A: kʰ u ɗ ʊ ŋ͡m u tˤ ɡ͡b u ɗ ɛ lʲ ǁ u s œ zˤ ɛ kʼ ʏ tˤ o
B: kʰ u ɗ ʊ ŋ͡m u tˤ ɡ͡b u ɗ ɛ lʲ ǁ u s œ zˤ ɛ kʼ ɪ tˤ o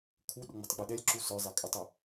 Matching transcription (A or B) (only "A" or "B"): A